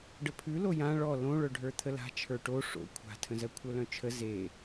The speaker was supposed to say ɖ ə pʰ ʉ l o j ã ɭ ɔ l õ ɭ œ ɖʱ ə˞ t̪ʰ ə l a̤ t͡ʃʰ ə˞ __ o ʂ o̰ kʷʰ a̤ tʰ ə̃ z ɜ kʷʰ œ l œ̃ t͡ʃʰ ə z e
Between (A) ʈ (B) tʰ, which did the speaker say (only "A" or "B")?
A